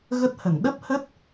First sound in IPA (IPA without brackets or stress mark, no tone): ɣ